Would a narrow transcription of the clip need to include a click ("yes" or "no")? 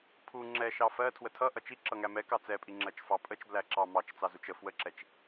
yes